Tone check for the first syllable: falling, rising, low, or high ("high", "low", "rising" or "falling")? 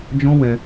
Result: high